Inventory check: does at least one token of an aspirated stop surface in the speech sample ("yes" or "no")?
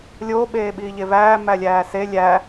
no